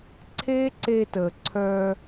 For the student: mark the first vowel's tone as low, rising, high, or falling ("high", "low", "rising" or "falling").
high